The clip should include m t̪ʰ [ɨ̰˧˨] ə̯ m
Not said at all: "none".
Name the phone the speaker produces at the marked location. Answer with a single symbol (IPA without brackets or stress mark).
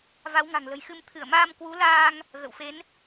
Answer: ɨ˧˩